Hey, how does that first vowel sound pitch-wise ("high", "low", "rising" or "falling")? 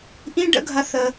high